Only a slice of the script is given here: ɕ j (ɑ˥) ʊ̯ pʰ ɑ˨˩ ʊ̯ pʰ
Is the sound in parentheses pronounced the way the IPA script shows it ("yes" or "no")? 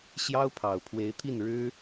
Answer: yes